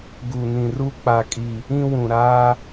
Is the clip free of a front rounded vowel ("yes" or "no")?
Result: yes